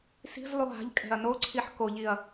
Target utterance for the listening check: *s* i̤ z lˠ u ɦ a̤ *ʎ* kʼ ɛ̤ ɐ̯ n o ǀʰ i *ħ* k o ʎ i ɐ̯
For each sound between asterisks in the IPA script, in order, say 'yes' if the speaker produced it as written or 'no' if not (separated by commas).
yes, yes, yes